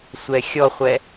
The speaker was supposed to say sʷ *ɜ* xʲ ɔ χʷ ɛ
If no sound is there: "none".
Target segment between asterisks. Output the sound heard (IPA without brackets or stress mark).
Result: ɛ